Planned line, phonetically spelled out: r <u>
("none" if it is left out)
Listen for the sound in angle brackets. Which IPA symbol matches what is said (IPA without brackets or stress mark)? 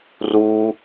u